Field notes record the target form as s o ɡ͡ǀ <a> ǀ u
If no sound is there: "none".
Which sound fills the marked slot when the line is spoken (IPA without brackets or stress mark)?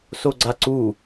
a